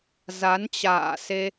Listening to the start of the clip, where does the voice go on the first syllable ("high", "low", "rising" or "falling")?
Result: rising